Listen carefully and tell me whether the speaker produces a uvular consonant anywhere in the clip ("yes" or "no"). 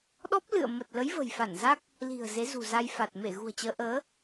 no